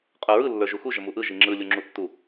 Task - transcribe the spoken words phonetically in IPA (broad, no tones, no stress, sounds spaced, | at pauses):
qʼ ə˞ ɹ ɯ lː ə˞ ʒ u x u ʒ ə m u ʔ ɯ ʒ i ŋ͡ǁ ɯ lʲ u ŋ͡ǁ u tː u